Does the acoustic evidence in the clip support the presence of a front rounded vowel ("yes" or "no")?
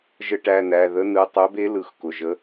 yes